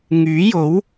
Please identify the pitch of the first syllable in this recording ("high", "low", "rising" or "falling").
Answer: rising